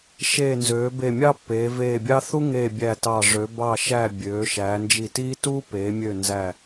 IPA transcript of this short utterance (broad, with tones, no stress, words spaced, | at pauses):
ʃeː˧˩nzøː˩˧be˧˩ mʲɑ˥pːeː˩˧veː˧˩bʲɑ˥ θu˥ŋeː˧˩ bʲæ˧˩tɑ˧˩ʐø˩˧ bɑ˧˩ʃæ˧˩ bʲøː˩˧ʃæː˩˧nd͡ʒi˧˩tiː˥ tuː˥peː˩˧mʲø˧˩ nzæ˧˩